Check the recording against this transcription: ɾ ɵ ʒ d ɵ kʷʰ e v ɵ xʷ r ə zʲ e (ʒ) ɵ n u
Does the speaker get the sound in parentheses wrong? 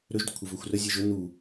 no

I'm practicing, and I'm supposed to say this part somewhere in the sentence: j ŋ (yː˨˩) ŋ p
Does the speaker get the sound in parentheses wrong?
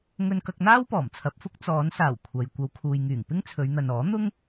no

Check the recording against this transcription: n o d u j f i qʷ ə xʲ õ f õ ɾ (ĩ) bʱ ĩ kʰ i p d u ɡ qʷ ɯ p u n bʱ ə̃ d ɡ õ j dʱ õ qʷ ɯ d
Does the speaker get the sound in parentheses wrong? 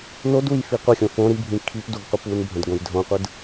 yes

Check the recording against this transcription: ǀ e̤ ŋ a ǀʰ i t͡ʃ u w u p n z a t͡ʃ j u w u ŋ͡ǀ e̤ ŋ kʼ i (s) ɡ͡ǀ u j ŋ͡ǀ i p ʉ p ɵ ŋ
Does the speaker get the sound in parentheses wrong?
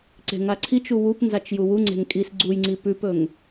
no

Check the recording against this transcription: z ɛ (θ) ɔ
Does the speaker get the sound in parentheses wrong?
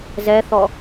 no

